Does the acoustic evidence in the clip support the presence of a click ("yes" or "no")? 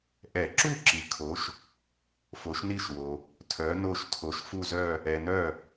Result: yes